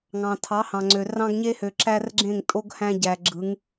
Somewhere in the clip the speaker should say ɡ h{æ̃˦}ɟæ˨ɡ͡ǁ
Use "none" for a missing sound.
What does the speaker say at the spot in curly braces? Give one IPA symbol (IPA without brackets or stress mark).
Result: æ̃˦